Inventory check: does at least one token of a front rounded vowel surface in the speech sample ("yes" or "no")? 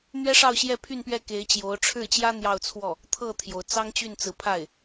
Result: yes